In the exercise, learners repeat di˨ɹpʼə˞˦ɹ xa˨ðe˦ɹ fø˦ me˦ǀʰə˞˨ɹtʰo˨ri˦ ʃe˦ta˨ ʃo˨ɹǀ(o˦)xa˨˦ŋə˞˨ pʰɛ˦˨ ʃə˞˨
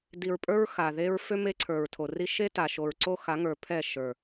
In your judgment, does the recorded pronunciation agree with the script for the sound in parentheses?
yes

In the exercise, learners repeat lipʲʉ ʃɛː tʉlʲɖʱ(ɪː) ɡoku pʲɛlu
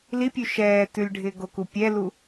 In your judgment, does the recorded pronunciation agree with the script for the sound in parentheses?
yes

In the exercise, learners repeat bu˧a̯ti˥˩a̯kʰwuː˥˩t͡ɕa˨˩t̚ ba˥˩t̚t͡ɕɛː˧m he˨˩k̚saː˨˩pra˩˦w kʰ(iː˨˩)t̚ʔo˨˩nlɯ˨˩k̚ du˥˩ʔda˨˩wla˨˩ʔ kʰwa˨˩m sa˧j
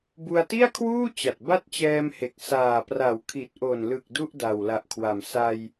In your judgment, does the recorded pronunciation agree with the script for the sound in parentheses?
no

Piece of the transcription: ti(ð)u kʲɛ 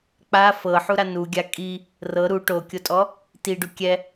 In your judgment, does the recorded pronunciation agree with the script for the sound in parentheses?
no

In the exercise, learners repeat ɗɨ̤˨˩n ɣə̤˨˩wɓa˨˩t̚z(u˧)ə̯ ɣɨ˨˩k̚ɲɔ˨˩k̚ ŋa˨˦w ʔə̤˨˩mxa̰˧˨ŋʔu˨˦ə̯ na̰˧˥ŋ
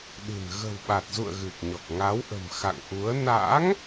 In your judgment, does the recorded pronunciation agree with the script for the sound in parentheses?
no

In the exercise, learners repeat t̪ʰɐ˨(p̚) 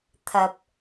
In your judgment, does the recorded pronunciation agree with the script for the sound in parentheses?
yes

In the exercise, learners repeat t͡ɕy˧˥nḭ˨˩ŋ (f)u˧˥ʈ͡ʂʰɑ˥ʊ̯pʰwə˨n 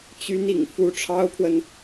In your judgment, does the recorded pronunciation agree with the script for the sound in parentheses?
yes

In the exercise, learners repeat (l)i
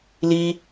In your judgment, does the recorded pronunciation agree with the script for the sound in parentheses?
yes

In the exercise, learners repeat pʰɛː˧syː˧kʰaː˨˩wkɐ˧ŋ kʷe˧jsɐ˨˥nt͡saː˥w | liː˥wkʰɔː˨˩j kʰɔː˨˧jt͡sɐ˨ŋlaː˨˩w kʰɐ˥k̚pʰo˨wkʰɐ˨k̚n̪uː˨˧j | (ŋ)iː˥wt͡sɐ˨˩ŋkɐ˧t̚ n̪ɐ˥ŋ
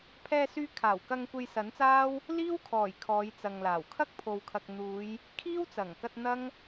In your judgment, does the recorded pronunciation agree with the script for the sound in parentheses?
no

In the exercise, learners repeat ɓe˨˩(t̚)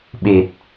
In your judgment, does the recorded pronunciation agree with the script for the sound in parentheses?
yes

